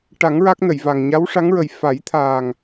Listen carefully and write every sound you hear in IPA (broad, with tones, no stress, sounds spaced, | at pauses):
ʈ a˨˩˦ ŋ ɹ a˦˥ k̚ n ə˨˩˨ j v a˨˩ ŋ ɲ a˧˥ w ʂ a˧˥ ŋ ɹ ə˨˩ j f a˨˩˦ j t̪ʰ aː˨˩ ŋ